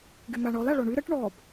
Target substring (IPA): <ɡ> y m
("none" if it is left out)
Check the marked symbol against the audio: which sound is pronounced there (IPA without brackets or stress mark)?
ɡ